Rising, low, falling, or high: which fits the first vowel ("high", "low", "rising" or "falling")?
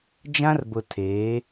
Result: high